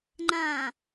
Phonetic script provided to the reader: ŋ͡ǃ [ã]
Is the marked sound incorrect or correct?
correct